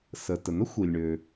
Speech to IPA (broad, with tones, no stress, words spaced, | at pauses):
sə˩ tə˩n̪ə˥xʷi˩lʲɳø˩